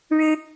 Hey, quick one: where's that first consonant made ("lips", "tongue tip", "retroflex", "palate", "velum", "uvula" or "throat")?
retroflex